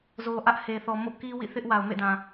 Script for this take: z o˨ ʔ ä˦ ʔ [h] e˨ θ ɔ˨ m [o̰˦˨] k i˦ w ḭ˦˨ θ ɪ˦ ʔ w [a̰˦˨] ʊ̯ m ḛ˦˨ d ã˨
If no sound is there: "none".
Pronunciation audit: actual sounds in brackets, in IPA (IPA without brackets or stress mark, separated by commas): h, o̰˦˨, a˨